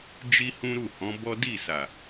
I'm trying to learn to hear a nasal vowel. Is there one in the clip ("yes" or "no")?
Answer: yes